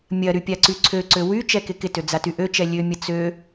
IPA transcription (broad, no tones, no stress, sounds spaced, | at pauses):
mʲ ɐ ɾ y pʲ a ǀ y ǀʰ ø ǀ ø w y t͡ʃ ɛ k ɪ k ɪ t ø d͡z a t y ʔ ø t͡ʃ ɛ lʲ ø mʲ ɐ t͡s ø